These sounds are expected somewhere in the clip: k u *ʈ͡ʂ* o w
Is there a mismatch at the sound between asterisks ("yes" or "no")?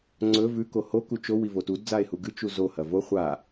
yes